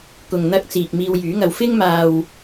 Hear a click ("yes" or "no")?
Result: no